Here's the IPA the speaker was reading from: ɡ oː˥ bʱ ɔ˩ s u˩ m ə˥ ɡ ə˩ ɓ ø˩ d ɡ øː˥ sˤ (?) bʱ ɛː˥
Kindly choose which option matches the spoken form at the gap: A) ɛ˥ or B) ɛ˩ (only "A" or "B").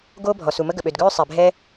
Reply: B